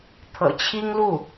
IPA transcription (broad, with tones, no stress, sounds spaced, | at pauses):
t̪ʰ ɤ̰˨˩ t͡ɕʰ i˥ ŋ l u˥˩